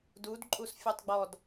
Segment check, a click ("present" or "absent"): present